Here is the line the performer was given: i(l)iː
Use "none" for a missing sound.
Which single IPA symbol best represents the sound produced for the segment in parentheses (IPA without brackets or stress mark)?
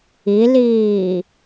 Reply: l